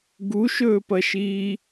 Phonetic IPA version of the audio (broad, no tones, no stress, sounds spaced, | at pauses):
ɡ u ʃ ɵː p ɐ ʃ iː